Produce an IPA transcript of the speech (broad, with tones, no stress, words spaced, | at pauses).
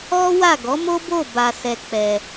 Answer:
ɔ˦wa˦˨ ɡɔ˨˦mo˦bo˦˨ ba˧sɛ˧k͡pɛ˧